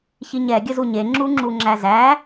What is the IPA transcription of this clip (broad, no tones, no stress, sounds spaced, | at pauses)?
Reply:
ç i ɲ ɛ ɡʲ ə z u ɲ e ŋ͡ǁ u ŋ͡ǁ u ŋ͡ǁ æ z æ